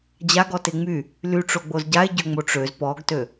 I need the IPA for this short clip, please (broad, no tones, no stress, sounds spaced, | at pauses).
d͡ʑ a ɡ ɔ t e ŋ͡m y | l y ʈ͡ʂ o ɡ͡b o z ɟ a e̯ ɟ ø ŋ͡m o ʈ͡ʂ ø z p ɔ ɡ t ø